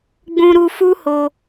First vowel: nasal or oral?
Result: nasal